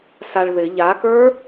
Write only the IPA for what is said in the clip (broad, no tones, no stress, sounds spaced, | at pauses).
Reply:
s a ɭ ð ɪ ʎ a k ə˞